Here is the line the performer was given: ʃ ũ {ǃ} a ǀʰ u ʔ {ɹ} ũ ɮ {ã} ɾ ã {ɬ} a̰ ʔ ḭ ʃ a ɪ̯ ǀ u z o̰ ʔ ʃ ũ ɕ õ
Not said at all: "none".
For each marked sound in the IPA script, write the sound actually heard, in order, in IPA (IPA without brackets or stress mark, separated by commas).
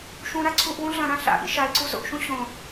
ɾ, w, ɐ̃, ɬ